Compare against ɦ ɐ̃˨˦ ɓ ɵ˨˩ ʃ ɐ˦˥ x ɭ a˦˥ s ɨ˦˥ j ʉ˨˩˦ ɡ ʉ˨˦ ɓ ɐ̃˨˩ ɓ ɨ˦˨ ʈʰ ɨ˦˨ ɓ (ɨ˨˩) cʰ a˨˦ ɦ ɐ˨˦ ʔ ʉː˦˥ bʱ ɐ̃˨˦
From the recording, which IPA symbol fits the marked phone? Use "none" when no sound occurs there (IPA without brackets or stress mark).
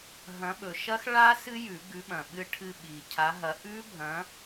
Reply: i˨˩